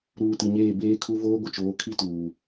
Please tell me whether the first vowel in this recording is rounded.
yes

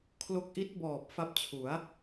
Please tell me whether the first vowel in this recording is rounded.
yes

